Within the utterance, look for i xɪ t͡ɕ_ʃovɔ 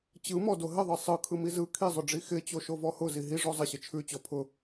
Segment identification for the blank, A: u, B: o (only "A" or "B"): B